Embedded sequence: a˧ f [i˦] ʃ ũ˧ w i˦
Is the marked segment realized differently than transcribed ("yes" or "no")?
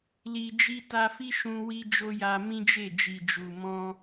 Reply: no